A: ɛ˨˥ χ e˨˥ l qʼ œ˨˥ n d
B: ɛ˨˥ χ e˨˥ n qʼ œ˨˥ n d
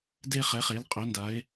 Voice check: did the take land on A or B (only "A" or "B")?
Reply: A